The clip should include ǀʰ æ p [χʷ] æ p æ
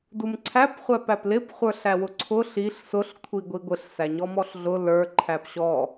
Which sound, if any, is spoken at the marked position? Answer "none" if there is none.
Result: χʷ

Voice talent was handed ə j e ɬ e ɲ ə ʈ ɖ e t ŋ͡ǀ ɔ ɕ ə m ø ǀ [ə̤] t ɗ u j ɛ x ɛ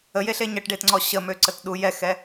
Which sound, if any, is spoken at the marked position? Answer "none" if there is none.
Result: ə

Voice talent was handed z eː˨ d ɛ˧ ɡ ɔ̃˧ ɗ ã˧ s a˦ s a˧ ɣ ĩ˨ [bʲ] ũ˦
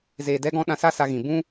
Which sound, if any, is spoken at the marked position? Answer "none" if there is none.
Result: b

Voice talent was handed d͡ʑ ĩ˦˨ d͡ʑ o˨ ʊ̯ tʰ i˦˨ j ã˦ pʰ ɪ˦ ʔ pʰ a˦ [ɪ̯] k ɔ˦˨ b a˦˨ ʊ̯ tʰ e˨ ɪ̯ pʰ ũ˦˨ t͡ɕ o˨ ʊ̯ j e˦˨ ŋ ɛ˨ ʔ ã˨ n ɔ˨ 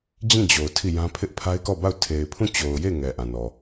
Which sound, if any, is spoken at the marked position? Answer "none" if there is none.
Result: ɪ̯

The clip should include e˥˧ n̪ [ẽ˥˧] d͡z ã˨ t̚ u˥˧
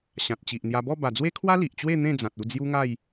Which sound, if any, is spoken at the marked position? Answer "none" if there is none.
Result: ẽ˥˧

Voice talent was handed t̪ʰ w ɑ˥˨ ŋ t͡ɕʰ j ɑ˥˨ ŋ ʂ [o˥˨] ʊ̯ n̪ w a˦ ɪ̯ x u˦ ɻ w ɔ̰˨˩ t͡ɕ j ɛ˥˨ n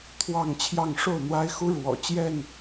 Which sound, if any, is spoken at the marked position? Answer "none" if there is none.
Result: o˥˨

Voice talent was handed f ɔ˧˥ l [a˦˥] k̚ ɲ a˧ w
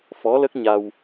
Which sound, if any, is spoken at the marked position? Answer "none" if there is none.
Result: ə˦˥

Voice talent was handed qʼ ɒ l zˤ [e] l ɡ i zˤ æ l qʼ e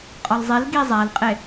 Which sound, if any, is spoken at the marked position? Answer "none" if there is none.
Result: e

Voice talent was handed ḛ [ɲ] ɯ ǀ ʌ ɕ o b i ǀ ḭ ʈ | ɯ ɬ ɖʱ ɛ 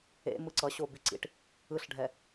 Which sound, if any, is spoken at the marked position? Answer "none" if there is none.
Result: m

